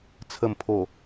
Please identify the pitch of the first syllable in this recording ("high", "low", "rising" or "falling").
low